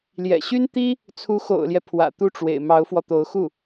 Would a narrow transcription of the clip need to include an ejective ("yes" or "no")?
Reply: no